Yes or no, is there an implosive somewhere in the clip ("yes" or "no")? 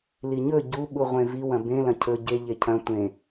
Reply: yes